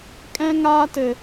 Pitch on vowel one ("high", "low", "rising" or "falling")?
high